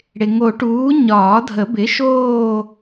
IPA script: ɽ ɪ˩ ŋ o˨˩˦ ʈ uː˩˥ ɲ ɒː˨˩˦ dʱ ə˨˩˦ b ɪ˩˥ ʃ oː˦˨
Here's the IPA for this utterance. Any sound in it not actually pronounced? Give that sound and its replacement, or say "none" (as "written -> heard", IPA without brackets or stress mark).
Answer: none